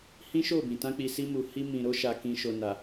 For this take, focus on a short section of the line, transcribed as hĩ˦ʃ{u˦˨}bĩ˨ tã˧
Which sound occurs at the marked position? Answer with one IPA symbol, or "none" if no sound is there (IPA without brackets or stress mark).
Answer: o˦˨